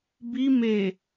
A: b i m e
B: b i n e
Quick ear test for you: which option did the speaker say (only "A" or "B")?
A